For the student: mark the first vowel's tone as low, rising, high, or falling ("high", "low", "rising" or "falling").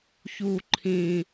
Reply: low